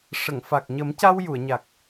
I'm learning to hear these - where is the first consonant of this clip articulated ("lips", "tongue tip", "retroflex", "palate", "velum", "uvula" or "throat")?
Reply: retroflex